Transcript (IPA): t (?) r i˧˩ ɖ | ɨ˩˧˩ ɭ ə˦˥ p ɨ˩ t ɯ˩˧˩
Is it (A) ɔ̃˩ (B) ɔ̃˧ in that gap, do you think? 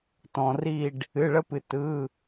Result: A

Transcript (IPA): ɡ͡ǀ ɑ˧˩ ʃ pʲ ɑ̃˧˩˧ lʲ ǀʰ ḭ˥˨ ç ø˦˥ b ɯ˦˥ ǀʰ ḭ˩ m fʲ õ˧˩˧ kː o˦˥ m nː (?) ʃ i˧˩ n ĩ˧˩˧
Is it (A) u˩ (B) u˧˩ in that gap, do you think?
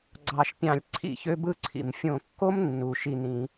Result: A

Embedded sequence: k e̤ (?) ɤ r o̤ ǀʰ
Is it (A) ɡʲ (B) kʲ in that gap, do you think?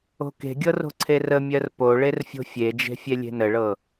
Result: A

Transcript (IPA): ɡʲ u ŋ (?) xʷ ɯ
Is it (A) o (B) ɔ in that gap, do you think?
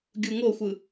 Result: A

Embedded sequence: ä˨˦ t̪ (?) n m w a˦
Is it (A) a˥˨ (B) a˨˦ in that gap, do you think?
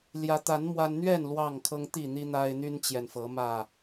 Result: B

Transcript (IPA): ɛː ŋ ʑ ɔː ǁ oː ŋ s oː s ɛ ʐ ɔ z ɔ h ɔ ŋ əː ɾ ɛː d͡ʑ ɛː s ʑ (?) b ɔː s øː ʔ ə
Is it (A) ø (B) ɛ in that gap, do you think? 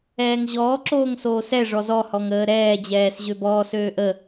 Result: A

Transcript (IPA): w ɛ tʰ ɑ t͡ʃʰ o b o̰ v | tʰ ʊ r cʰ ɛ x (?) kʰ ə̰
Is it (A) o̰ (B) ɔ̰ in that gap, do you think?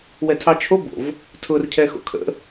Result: A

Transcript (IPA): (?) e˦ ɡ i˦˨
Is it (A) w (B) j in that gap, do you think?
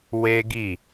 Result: A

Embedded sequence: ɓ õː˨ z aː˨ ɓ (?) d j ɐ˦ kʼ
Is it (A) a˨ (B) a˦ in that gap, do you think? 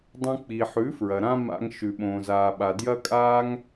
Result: A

